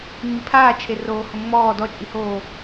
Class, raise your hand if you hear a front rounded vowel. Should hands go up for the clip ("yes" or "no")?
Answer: no